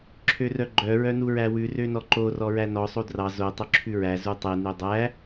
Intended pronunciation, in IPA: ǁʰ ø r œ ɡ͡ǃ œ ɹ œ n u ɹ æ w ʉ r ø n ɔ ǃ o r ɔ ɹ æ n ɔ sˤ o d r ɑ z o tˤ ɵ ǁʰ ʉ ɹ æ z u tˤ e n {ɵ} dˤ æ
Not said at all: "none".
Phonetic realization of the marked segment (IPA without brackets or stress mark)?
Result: ø